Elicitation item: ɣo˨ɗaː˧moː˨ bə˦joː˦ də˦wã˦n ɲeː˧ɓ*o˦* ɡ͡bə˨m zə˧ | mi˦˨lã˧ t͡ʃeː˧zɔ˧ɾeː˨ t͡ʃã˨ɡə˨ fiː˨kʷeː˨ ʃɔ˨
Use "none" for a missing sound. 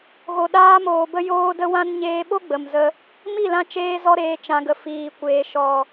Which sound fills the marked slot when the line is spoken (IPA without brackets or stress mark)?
o˦